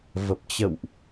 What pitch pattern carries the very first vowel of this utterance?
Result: low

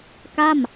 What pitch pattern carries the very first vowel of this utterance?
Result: falling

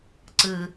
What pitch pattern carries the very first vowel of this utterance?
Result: low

